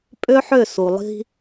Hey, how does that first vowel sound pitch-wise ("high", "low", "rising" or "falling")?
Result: high